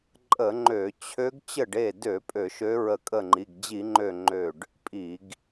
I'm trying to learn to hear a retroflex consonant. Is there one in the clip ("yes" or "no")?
yes